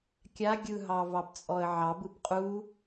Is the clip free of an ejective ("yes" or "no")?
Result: no